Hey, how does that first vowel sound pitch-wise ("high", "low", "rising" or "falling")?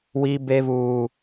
high